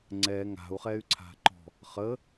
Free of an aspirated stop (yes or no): no